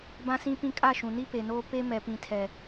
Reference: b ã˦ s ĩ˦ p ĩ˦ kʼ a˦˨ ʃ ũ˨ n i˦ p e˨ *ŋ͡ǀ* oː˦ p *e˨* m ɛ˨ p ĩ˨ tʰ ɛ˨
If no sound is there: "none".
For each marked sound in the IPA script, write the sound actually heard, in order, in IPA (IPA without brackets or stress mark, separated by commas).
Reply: n, e˦